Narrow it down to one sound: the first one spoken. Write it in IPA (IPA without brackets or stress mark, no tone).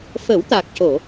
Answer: f